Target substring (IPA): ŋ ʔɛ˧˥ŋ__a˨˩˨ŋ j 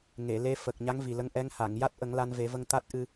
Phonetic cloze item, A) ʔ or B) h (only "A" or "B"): B